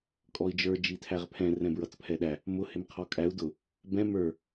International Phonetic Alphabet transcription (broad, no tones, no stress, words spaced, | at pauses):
kʼɔi̯d͡ʒə˞ d͡ʒitʰæʁpʰɛ̃ rɛ̃bɹʌt͡spʰɛɗæ | mʊ hɪmqʰɔkʼæu̯ dʊ | bɛ̃ mə˞